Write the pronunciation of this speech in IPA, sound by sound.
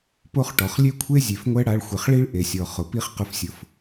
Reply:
p o˦ χ ʈ ɔ˨ χ lʲ e˦ kʷʰ e˦ zʲ e˨ f ŋʷ ɛ˦ ɽ a˧ ɭ xʷ e˨ χ ɭ i˦ ɭ ʔ e˨ sʲ ɔ˨ χ ʊ˨ p i˦ χ q ʊ˦ f sʲ ʊ˦ f

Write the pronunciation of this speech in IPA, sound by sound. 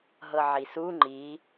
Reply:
ɦ ɤ ʕ i s u ŋ͡ǃ i

